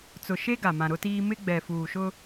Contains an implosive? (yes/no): no